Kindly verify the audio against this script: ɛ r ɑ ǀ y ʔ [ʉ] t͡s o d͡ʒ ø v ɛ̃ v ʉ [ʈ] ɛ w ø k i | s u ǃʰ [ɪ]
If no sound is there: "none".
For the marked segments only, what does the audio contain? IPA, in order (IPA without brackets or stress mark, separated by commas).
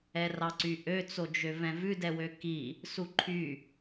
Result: ø, d, y